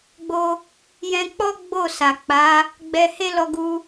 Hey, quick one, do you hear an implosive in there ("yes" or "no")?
no